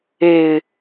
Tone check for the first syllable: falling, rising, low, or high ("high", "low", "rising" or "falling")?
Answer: low